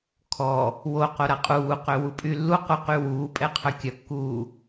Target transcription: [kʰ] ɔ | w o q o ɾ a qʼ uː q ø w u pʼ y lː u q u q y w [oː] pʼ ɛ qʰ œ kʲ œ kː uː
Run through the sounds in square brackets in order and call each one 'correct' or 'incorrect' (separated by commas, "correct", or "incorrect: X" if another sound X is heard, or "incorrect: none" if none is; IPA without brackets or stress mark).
correct, incorrect: uː